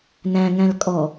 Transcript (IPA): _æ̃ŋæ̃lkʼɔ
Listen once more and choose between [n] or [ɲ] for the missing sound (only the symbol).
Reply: n